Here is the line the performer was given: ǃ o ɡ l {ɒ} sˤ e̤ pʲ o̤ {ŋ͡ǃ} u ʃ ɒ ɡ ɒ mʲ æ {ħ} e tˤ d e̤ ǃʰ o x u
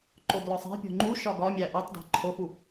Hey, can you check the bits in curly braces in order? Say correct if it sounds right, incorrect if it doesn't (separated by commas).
correct, correct, incorrect